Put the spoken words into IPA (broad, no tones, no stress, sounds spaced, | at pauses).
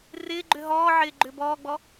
r ɪː ɡ͡ǃ ʏ ɦ ɔː ʕ ɪː ɡ͡ǃ ʏː b ɔː ɡ͡b ɔ